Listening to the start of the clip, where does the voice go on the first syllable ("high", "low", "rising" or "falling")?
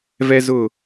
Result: high